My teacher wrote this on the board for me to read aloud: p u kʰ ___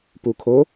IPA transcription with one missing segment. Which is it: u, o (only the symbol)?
o